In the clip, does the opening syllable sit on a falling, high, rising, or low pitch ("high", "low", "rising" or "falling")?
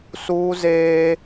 high